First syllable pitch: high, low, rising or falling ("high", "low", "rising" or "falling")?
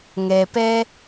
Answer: low